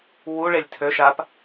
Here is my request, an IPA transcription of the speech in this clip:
w u ɭ e lʲ tʰ ø ʃ a p

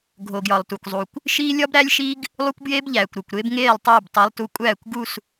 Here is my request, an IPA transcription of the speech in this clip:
ɡʱ o˨ ɡ j ɒ˨ lˠ t u˨ kʷ zˤ u˨ kʷ | ʃ iː˦ lʲ ɒ˦ b ɾ æ˦ lʲ ʃ i˦ ɡ | lˠ u˦ kʷ b j eː˦ b ʎ æː˨ kʷ ɾ o˨ kʷ ɾ e˦ b ŋ eː˦˨ lˠ tˤ eː˦˨ b tˤ e˨˦ lˠ t u˨˦ kʷʼ æː˦˨ kʷ ɡ u˦˨ s

